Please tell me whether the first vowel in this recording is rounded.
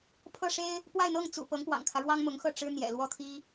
no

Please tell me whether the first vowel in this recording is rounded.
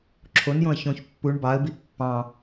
yes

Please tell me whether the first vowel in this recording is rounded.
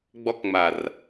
yes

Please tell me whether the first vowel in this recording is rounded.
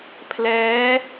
no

